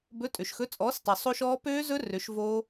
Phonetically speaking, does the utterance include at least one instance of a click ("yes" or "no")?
no